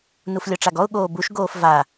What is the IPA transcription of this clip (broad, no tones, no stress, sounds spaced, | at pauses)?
n u f lʲ ɔ ʈ͡ʂ a ɡ ɔ ʊ̯ ɠ oː b u ʃ ɡ oː f v a